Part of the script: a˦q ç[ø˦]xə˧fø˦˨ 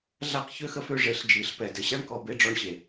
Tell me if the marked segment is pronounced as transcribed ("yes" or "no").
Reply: yes